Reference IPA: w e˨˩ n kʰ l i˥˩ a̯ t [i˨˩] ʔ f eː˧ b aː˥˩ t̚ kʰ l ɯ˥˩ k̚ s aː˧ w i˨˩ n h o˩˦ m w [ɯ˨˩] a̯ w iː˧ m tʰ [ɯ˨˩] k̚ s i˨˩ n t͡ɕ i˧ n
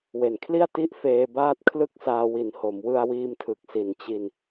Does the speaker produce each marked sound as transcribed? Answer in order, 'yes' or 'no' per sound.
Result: no, no, yes

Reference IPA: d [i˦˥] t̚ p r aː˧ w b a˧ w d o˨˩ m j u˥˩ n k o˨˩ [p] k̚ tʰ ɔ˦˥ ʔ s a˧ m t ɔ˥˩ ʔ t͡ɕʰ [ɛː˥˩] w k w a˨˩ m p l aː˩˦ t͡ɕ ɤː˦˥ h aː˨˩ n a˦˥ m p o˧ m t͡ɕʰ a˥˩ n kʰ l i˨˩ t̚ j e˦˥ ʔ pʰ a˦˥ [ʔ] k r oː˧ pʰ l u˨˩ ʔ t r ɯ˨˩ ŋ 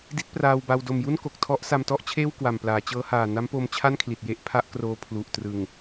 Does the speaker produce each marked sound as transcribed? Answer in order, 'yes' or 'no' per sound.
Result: yes, no, no, yes

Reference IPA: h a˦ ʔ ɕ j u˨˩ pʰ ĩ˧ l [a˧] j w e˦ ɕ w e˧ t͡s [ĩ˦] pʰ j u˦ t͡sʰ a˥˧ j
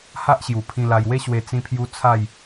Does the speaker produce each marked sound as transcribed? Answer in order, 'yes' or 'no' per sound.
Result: yes, yes

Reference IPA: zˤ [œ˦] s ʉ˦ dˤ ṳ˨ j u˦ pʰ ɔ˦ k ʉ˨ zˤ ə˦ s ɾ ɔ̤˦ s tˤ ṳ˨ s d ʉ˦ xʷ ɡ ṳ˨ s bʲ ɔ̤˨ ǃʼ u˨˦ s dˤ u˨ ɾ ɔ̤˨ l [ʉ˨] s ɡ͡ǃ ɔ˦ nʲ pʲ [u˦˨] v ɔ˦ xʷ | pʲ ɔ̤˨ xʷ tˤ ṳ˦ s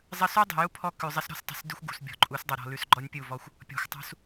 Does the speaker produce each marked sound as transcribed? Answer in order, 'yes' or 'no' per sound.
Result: no, yes, yes

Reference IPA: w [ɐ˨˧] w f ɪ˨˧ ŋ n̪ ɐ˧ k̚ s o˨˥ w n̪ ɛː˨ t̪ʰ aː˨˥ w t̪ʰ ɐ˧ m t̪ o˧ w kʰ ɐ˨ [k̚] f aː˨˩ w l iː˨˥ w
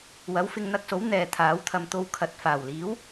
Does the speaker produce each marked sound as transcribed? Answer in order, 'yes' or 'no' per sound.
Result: no, no

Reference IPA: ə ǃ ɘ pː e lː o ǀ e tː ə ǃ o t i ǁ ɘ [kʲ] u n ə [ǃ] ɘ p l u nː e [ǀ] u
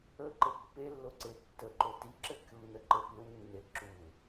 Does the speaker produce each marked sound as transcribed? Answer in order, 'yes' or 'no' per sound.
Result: yes, yes, no

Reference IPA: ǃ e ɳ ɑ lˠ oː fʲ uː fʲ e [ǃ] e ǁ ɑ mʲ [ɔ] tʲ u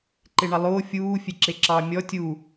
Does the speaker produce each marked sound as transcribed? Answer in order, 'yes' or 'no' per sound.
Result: no, yes

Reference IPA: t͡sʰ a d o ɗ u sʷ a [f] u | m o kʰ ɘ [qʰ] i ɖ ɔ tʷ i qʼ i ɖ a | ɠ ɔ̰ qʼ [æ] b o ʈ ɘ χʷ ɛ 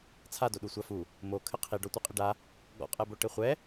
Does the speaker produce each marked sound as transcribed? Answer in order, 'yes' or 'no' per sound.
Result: yes, yes, no

